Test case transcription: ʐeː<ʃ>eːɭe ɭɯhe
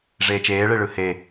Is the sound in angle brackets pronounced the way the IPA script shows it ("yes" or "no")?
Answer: no